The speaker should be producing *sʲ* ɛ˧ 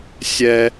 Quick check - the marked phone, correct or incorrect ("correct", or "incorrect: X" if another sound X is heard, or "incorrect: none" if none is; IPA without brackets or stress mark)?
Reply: correct